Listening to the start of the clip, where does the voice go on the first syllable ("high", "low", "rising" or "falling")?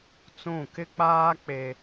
falling